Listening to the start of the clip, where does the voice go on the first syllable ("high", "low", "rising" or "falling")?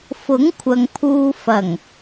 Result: rising